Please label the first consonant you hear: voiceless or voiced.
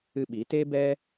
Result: voiced